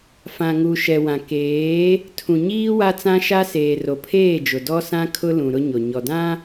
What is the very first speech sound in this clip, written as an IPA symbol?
f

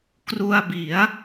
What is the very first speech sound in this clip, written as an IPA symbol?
k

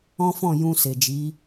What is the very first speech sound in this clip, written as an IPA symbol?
ɔ̃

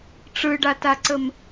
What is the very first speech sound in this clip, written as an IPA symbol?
ʈ͡ʂ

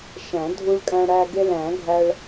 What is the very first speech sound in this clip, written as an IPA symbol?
ʃ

